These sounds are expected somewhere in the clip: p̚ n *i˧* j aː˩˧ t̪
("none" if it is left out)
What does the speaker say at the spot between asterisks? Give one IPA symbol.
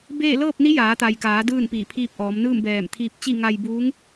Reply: i˧˥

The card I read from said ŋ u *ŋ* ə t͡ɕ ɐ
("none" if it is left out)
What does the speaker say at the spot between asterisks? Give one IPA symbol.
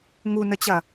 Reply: n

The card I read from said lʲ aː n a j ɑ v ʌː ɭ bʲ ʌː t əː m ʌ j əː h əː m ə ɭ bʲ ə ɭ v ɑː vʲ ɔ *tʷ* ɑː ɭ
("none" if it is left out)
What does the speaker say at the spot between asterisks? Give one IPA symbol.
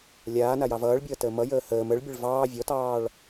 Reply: t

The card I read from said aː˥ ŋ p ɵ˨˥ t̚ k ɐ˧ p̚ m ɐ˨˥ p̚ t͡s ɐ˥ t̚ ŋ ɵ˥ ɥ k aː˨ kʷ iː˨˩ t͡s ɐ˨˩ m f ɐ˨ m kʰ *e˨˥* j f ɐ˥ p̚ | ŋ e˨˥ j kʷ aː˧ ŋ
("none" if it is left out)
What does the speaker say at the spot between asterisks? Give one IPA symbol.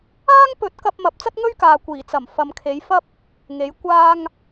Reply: e˨˥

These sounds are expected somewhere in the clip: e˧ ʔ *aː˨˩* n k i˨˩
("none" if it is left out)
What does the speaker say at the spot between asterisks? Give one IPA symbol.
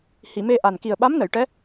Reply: a˨˩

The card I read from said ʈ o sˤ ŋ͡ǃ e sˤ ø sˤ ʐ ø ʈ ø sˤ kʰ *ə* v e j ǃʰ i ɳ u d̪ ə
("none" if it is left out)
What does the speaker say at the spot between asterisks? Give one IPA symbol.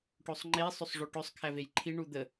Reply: æ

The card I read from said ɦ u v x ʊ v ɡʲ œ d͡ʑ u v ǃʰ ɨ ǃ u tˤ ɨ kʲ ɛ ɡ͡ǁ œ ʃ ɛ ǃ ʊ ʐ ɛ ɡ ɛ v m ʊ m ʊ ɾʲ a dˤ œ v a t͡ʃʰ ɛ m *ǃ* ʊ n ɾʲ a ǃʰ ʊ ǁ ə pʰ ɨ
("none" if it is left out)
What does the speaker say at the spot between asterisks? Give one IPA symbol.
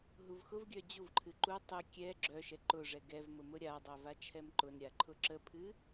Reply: ǃ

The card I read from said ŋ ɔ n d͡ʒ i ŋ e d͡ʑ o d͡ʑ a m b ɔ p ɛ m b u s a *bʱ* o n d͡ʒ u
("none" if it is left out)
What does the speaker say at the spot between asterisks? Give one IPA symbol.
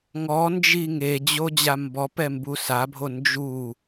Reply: bʱ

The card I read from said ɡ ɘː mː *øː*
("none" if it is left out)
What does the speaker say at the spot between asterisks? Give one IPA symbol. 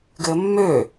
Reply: øː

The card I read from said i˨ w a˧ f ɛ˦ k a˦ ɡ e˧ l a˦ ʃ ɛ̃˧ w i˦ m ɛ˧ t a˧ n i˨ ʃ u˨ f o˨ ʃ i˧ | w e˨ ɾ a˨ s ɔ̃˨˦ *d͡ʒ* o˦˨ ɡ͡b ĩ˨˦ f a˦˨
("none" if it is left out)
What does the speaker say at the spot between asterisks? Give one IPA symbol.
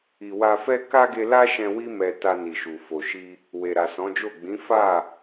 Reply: d͡ʒ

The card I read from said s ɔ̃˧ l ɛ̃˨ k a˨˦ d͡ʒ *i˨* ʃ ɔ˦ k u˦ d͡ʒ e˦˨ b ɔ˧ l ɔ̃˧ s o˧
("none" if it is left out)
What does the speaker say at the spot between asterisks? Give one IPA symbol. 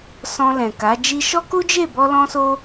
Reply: i˧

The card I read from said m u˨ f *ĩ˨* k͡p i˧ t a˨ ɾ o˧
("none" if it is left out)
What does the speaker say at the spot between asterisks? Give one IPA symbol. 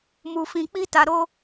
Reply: ĩ˨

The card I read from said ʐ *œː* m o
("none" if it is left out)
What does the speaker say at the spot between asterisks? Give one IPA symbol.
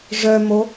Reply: œ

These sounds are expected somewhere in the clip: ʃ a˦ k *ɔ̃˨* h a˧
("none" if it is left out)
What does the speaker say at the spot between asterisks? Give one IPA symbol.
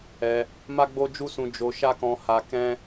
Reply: ɔ̃˧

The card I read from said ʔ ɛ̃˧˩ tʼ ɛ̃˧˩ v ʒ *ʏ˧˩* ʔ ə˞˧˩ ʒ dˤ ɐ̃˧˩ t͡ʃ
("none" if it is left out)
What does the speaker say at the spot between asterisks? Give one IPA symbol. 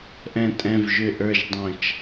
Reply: ʏ˧˩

